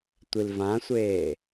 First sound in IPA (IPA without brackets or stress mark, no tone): tʷ